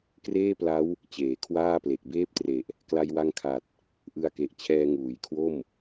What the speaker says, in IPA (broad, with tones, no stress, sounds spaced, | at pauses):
k r eː˥˩ p l a˦˥ w | t͡ɕ eː˩˦ kʰ w aː˥˩ p l e˨˩ k̚ b eː˥˩ p̚ t r e˨˩ ʔ | k l a˧ j w a˧ ŋ kʰ a˨˩ t̚ | ʔ ɯ˧ a̯ k e˨˩ ʔ t͡ɕʰ ɛː˧ ŋ uː˩˦ j kʰ w o˥˩ m